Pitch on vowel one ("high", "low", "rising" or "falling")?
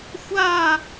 falling